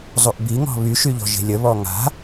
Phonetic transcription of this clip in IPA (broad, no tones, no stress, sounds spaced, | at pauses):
zˤ u ʔ b i ŋ ɔ̤ β y ʃ y ʎ ɔ̤ ʒ e̤ lʲ ə β ɔ ŋ a̤